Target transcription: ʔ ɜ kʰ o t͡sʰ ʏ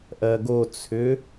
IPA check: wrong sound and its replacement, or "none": kʰ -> ɡ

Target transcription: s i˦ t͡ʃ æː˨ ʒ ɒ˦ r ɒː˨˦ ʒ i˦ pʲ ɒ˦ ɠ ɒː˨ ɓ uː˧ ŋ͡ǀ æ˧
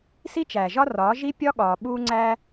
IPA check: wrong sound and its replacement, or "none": none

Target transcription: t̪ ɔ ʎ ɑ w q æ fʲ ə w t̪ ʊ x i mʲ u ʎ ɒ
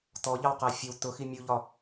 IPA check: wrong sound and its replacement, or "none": none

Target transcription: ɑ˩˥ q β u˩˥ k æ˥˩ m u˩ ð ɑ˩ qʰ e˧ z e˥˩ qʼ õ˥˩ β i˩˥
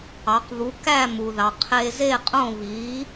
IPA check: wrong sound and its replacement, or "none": none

